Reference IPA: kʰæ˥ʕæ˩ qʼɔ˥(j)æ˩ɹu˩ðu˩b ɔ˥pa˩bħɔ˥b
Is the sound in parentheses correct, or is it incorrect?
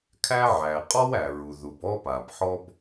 incorrect